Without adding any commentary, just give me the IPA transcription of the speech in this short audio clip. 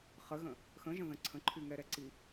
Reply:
χ ə ɣ ə̃ | x ə̃ ʒ ə̃ ð ə̃ ǀʰ ə̃ ǃʰ y ŋ ɛ ɾ ɛ ǀ i

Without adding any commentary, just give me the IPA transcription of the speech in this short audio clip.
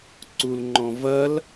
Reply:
ǀ u l ŋ͡ǃ ɔ̃ v ɐ l

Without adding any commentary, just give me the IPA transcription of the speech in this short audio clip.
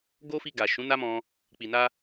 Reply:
ɡ o˦ f i˧ ɡ a˨ ʃ ũ˨˦ n a˦ m ɔ̃˧ | k͡p i˨ n a˧

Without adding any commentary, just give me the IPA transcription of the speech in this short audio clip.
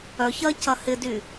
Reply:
œ ç ɐ c ɐ h ɪ d y

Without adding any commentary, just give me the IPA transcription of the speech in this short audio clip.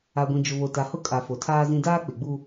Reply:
a˨ ɡʷ ĩ˨ d͡ʒ ʊ˨ β o˨ t a˨ h ʊ˦ kʼ a˨ f o˨ tʰ aː˦ z ĩ˦ d aː˦ k͡p ɪ˨ ɡ͡b u˦

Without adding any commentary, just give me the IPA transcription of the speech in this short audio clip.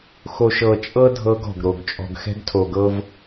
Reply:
x o˨ ʃ ɤ˨ t͡ʃʼ ɤ˦ dʱ ɤ˦ ɡ ɔ̤˨ ɡ ɾ o˨ ɡ t͡ʃʼ ɔ̤˨ ɡ x ɛ̤˦ ɡ tʰ o˨ ɡ ɤ˦ v

